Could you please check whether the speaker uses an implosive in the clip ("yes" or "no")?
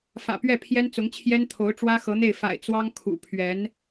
no